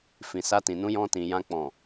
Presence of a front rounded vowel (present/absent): absent